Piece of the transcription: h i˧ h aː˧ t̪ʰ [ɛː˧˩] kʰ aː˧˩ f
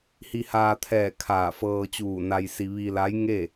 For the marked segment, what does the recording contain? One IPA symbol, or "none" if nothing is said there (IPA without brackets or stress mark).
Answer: ɛː˧˩